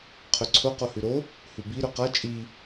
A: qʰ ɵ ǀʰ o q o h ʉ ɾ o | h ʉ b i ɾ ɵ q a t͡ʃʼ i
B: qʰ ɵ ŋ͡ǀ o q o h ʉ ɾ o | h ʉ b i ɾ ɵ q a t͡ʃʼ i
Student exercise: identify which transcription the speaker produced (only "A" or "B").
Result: A